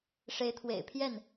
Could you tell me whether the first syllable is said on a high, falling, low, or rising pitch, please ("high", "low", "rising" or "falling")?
rising